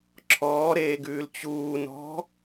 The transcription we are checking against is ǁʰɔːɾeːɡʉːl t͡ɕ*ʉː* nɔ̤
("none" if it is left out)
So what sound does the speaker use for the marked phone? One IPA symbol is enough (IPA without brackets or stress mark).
uː